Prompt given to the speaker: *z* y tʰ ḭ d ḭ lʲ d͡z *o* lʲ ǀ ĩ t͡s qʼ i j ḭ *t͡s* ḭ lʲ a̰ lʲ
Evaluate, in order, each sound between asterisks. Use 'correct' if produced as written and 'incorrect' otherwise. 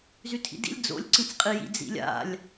correct, incorrect: o̰, incorrect: d͡z

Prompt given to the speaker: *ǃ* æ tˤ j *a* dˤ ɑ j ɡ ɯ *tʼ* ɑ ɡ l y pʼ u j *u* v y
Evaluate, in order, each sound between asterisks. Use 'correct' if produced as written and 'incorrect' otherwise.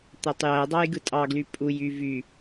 incorrect: t̪, incorrect: æ, correct, incorrect: y

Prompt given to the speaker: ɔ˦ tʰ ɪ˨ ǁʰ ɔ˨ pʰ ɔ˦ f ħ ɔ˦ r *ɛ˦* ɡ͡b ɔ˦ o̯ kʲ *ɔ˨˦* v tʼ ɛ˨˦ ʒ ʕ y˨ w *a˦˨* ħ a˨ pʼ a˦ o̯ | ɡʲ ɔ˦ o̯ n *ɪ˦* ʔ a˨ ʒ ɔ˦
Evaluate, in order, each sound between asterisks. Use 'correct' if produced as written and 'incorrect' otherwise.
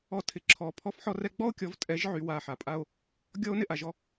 correct, correct, correct, correct

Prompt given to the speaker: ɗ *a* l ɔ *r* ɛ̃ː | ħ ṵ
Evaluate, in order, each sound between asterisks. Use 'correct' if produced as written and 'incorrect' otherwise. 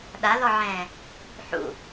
correct, incorrect: ʕ

